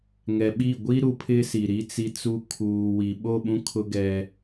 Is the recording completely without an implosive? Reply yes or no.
no